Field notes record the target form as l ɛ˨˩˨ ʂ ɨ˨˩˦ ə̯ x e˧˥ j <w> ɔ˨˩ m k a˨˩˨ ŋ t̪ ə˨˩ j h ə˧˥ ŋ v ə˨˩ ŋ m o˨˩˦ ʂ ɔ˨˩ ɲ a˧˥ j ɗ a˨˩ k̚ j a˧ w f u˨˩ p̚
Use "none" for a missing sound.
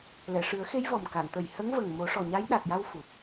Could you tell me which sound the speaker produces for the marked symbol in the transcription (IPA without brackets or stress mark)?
v